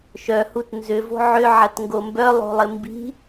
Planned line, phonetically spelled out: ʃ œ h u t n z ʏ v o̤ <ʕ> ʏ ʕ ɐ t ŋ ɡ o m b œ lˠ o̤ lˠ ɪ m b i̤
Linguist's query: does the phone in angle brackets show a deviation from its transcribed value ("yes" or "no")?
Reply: no